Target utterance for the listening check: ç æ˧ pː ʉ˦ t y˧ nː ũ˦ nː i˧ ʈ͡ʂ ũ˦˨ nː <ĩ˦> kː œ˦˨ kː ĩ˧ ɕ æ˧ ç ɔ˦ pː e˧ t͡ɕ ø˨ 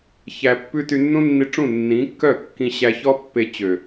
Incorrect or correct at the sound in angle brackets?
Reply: incorrect: ĩ˨˦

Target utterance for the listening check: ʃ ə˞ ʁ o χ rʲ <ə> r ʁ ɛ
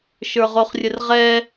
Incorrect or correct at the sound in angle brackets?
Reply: correct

